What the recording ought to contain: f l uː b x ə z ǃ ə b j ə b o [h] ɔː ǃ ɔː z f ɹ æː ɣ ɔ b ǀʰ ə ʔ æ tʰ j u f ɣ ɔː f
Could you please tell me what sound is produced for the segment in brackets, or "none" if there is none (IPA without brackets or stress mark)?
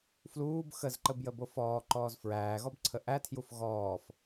f